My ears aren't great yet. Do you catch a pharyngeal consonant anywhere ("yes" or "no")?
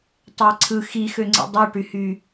no